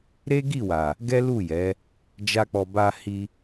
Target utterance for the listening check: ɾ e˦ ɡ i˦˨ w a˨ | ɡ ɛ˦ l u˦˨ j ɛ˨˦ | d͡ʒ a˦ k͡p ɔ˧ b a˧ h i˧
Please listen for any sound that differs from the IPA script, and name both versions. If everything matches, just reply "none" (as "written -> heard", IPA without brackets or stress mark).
none